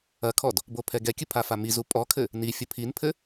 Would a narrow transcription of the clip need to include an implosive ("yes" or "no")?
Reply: no